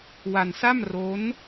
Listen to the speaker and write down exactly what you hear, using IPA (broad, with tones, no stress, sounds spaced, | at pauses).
w a˧ n s a˥˩ m r o˦˥ n